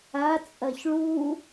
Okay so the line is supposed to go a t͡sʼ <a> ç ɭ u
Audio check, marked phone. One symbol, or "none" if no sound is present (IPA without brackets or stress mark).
ɐ